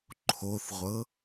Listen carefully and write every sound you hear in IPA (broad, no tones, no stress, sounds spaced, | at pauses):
ǃʰ o θ ʁʷ ɤ